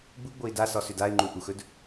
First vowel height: high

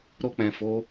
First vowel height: mid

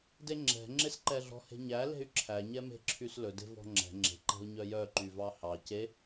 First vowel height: mid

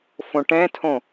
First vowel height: mid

